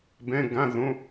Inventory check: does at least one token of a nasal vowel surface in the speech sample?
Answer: yes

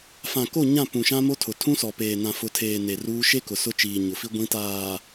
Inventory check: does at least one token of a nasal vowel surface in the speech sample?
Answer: yes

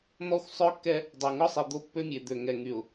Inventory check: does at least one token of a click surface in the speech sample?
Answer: no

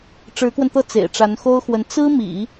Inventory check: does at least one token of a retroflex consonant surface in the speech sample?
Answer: yes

